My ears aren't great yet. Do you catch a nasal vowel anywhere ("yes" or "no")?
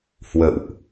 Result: no